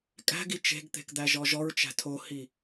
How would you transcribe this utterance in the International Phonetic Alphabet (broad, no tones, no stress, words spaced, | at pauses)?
kʼæ̤ɡi t͡ʃe̤ɡt̪e̤kd̪æʒɔ ʒɔɹt͡ʃæ̤ tʰohi